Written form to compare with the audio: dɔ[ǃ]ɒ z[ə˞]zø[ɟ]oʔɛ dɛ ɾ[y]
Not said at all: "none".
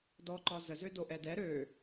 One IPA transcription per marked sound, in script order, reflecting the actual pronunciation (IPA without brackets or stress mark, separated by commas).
ǃ, ə, d, ø